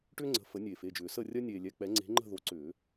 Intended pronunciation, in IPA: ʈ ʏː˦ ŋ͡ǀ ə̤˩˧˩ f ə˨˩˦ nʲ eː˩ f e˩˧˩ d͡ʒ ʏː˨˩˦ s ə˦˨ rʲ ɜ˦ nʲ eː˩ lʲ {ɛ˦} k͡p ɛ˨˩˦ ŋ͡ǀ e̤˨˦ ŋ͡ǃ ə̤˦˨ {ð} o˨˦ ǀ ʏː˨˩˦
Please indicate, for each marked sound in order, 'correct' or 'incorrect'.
incorrect: ɛ˩˧˩, correct

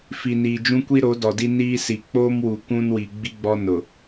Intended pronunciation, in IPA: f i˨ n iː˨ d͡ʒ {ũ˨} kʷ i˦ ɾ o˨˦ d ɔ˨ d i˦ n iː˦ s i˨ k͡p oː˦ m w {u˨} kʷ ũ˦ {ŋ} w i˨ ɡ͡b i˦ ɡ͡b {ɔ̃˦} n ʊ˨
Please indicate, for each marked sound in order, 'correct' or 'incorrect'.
incorrect: ũ˦, correct, incorrect: n, incorrect: ɔ˦

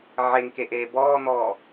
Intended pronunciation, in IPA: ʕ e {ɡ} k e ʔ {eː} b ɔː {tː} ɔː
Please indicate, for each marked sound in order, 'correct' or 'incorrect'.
incorrect: ŋ, correct, incorrect: n̪

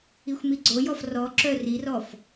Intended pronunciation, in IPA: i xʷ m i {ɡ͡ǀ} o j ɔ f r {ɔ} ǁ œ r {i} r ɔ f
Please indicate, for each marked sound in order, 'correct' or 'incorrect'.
correct, correct, correct

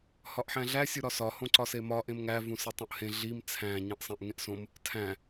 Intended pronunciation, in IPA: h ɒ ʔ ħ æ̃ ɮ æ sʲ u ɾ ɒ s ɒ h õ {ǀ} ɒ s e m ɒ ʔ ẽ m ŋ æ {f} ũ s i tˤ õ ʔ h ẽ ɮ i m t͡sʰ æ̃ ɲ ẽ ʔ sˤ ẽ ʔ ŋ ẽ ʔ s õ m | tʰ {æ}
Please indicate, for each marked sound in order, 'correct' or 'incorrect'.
correct, incorrect: v, incorrect: æ̃

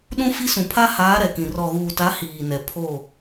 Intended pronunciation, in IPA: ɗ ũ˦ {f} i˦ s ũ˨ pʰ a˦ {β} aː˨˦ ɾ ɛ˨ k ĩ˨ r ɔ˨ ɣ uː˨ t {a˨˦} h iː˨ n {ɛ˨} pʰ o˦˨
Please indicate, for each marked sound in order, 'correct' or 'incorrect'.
correct, incorrect: h, correct, correct

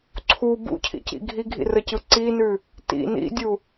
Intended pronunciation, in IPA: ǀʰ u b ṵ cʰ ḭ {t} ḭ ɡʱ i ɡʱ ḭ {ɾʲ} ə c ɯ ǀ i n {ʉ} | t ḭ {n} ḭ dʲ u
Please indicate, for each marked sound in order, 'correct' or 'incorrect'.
incorrect: c, incorrect: r, correct, correct

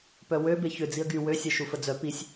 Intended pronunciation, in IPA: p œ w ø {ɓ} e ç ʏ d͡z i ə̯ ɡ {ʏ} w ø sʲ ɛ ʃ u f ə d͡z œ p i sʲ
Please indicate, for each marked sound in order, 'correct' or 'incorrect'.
incorrect: b, incorrect: y

